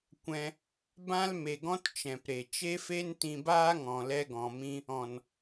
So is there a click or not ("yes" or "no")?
no